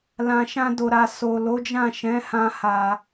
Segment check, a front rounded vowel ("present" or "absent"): absent